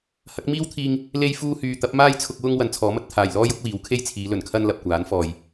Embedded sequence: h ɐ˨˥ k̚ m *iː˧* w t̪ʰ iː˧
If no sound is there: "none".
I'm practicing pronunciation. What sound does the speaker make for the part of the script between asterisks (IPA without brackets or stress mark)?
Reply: iː˥